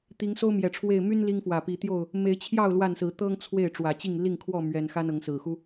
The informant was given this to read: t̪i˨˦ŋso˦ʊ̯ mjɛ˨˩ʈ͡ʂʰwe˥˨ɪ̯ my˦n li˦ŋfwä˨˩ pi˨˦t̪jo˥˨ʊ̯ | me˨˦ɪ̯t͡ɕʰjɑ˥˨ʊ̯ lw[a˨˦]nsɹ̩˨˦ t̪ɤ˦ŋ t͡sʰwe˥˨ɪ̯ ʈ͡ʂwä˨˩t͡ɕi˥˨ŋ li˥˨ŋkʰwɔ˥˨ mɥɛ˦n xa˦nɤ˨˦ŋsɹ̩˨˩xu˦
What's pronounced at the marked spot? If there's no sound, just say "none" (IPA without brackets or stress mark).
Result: a˥˨